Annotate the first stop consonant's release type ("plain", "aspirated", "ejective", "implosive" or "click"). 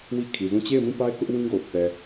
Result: aspirated